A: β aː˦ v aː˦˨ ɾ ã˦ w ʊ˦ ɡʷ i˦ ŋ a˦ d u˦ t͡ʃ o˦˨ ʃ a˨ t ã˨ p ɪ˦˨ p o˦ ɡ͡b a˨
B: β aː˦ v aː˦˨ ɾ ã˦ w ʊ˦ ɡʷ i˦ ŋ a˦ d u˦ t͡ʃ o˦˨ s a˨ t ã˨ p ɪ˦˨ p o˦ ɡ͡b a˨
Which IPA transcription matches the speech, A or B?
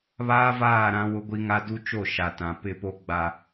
A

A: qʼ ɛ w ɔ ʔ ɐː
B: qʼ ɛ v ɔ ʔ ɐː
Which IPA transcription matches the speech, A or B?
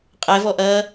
B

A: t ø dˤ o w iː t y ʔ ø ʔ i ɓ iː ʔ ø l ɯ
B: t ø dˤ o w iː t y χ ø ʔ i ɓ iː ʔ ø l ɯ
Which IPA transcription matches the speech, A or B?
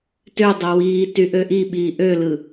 A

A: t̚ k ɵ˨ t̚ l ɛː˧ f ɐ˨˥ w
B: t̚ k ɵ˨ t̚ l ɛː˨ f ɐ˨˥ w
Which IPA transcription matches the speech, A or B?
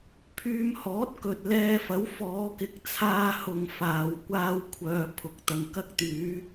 A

